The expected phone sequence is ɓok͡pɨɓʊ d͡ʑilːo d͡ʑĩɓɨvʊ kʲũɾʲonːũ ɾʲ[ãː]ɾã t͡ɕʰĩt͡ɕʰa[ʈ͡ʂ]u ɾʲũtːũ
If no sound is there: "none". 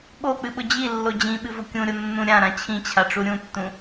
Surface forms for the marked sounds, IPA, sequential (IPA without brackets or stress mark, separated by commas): ã, ʈ͡ʂ